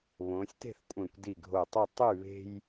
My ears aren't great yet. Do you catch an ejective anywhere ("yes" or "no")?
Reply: yes